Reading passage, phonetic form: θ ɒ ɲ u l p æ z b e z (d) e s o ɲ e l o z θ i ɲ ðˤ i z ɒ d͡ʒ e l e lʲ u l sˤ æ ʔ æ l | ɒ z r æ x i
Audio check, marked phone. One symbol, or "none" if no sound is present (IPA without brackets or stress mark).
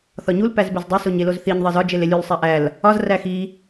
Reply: dˤ